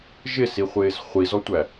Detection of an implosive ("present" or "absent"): absent